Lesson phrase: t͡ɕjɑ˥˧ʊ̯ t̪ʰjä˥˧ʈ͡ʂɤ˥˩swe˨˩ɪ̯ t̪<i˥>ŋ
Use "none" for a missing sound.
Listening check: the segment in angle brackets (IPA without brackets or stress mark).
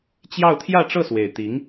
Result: i˧˥